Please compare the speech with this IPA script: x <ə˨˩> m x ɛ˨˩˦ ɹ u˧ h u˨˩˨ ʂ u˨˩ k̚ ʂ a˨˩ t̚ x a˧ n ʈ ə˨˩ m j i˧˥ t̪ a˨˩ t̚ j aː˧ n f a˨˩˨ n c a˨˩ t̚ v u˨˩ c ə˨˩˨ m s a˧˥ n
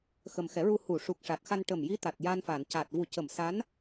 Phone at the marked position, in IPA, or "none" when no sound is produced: ə˨˩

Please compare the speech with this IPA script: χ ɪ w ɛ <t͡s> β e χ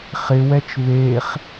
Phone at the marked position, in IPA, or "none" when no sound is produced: t͡ʃ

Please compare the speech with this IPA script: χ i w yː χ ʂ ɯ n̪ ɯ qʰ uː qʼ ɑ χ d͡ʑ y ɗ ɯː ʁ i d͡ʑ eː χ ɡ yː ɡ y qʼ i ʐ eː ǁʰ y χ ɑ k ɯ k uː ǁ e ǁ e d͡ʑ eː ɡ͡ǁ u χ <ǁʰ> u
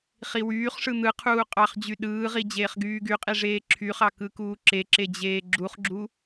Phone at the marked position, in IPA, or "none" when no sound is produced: ɡ͡ǁ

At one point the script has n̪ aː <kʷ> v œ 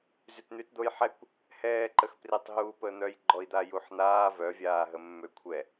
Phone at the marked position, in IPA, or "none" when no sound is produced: none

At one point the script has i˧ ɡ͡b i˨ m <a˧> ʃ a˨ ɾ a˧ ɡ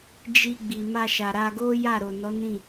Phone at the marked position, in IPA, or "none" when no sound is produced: a˧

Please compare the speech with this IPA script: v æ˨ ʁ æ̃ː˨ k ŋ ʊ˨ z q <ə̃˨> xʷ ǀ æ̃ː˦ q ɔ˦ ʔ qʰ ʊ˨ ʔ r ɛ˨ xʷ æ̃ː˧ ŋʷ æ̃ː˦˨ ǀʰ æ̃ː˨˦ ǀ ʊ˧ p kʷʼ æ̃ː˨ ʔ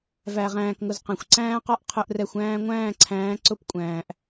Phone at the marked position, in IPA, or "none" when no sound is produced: ɛ̃˨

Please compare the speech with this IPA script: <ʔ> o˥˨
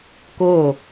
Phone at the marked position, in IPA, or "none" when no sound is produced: k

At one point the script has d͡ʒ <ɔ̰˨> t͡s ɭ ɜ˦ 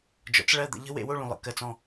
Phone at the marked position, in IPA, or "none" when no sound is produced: ɔ̰˨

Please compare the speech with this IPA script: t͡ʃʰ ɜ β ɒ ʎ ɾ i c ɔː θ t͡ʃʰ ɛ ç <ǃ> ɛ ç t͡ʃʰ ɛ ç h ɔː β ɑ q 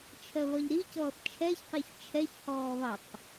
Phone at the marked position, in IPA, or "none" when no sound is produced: q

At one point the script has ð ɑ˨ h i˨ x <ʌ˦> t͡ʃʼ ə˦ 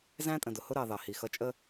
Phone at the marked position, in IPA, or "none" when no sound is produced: ʌ˦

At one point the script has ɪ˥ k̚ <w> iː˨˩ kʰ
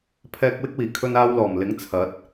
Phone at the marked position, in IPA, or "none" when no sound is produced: w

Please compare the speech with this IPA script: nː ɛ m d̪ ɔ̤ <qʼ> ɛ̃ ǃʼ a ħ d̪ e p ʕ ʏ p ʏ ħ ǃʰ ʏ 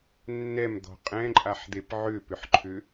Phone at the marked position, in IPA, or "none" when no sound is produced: qʼ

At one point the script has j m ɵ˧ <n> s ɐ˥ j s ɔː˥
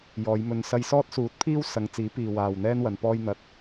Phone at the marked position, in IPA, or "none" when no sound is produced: n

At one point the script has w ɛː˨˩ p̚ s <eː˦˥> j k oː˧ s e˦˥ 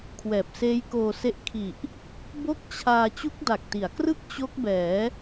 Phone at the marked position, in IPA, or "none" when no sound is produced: eː˦˥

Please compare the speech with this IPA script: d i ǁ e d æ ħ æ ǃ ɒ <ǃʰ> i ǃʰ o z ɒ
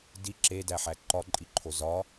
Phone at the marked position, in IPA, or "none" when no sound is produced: ǃʼ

